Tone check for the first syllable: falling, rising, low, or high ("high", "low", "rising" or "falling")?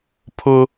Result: high